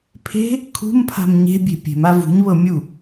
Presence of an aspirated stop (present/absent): present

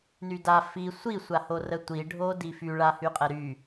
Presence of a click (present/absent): absent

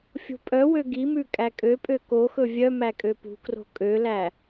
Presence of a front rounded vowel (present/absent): present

